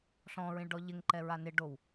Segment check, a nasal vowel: present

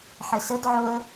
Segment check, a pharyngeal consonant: present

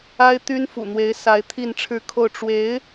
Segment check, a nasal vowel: absent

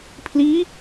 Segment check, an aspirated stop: present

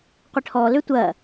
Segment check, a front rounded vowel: present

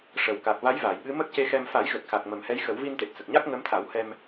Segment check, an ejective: absent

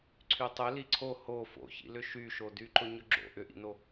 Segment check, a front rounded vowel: present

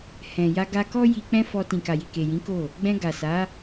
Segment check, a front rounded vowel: absent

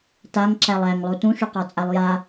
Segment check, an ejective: present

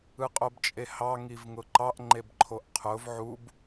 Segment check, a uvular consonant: present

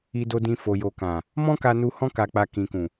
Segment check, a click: absent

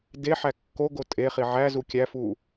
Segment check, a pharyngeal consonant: present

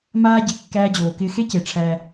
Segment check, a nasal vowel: absent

